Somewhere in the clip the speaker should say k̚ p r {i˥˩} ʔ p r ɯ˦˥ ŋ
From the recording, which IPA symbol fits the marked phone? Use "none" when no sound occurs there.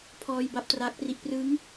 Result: i˦˥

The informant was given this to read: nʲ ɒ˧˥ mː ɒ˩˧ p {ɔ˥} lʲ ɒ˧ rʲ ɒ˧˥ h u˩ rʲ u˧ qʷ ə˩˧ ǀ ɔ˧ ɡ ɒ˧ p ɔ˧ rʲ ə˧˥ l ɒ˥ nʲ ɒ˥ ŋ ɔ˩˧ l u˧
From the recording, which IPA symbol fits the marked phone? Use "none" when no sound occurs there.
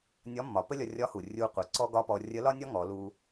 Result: ə˥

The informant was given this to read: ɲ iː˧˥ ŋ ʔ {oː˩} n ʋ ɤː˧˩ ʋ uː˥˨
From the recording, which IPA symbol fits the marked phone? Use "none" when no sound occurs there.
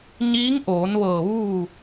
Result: oː˩˧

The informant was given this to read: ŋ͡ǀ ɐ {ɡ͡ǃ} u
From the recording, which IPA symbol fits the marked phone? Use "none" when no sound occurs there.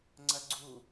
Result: ɡ͡ǀ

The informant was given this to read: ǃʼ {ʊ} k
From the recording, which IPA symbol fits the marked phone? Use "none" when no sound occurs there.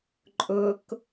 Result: ʊ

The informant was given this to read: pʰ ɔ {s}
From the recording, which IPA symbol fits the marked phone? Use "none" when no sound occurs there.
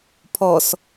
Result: s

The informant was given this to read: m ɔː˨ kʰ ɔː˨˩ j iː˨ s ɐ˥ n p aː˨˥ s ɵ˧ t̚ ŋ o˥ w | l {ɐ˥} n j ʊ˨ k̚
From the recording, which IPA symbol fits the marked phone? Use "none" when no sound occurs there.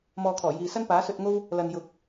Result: ɐ˨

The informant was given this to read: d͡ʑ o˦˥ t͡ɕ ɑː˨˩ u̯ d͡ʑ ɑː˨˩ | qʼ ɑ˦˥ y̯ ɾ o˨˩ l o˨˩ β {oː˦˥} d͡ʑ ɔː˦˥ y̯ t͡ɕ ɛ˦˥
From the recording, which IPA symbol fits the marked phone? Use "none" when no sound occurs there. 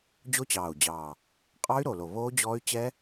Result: oː˦˥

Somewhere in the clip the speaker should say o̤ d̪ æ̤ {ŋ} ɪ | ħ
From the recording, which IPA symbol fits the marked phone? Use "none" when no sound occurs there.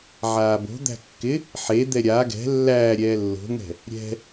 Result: kː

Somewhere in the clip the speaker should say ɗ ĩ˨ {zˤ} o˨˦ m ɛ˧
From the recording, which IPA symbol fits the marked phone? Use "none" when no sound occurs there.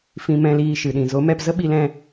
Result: z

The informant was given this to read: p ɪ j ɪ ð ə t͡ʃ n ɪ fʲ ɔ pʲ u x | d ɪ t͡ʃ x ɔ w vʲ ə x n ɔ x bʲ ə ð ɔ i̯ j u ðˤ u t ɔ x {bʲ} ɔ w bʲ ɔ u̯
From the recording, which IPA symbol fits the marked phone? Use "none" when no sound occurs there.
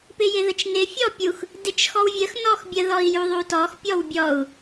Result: pʲ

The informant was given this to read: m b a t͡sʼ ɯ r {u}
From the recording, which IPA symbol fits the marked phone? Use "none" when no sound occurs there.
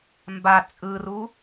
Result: u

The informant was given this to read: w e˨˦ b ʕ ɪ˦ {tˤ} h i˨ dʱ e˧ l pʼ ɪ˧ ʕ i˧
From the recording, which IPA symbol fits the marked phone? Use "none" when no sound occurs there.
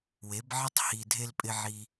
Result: tˤ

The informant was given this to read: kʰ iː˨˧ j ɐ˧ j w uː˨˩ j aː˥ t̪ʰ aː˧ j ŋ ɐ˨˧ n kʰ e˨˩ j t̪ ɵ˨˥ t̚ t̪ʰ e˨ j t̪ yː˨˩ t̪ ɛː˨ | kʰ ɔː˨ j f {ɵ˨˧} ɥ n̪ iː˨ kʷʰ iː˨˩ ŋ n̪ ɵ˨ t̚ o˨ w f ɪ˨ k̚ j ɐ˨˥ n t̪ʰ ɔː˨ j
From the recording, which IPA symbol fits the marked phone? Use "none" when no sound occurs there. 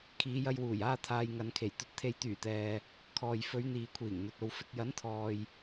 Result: ɵ˨˧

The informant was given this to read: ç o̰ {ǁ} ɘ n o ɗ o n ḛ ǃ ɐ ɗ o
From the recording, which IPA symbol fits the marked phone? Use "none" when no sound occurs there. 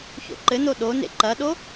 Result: ǃ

